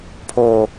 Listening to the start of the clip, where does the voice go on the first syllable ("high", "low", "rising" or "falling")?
high